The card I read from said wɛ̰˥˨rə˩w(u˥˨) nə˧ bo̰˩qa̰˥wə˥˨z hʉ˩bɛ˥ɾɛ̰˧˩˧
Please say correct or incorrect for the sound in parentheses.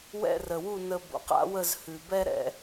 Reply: correct